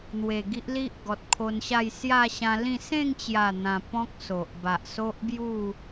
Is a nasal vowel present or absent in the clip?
present